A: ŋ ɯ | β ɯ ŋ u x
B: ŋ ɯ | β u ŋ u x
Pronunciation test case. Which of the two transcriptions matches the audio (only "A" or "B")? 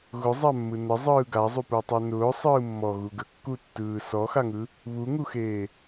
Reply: B